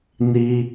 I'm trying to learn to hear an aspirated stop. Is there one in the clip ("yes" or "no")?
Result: no